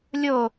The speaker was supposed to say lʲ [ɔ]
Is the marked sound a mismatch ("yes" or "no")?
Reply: yes